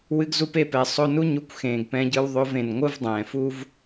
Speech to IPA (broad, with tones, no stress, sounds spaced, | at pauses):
w ɨ˧ ɡ z u˧ p e˧ p ɛ˨ sˤ o˦ n u˦ ɲ u˧ kʷ x ẽː˨ ɡ p ɛ̃˧ ɟ ɯ˧ w ðˤ o˧ v ẽ˨ n ŋʷ ɯ˦ v dˤ ɛ̃ː˨ f uː˦ v